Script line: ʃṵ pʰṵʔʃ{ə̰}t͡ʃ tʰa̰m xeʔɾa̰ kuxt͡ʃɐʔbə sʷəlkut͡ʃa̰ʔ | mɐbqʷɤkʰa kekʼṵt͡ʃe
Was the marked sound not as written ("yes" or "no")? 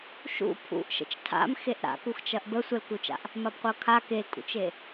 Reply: no